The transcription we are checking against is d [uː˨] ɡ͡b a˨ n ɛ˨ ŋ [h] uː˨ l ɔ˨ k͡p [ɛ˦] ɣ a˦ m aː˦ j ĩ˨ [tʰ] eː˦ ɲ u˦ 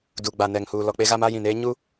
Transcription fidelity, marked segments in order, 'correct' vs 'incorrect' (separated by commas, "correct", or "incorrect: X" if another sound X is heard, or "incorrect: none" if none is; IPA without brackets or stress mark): incorrect: u˨, correct, incorrect: e˦, incorrect: n